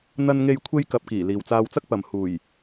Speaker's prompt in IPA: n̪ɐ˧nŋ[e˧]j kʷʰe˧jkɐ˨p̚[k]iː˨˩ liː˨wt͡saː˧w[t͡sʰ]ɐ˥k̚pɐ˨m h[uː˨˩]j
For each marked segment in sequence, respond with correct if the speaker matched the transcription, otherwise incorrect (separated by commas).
correct, correct, incorrect, correct